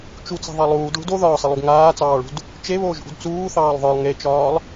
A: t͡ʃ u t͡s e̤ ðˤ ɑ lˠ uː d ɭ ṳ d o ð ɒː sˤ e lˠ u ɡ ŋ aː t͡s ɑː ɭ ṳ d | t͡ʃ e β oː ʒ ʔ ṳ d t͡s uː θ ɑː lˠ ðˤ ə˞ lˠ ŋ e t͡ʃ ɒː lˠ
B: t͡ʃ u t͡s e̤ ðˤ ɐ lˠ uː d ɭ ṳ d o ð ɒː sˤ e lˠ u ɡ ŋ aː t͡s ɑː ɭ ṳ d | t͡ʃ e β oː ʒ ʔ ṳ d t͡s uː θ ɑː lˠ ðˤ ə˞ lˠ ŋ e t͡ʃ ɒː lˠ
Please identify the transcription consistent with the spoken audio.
A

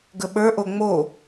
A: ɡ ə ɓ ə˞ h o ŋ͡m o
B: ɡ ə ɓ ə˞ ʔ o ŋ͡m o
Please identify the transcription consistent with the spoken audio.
B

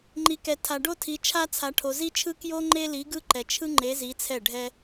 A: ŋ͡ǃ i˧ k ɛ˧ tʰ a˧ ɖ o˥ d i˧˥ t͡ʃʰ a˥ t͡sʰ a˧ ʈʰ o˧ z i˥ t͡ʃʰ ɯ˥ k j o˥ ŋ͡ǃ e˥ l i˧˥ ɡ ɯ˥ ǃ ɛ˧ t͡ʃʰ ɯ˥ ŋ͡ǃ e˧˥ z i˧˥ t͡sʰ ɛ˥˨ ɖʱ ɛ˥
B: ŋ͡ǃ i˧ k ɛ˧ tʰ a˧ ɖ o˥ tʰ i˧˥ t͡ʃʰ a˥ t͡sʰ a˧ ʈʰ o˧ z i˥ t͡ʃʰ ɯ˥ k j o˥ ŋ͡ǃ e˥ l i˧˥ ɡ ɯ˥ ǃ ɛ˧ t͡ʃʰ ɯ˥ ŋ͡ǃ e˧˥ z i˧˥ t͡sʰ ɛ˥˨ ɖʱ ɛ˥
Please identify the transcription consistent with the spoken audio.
B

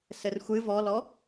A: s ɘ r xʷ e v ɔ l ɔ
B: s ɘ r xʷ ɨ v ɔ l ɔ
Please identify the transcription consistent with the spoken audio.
B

